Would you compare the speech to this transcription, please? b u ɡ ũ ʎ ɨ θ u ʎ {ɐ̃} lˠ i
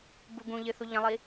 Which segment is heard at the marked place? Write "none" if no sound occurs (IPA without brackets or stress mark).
ɐ̃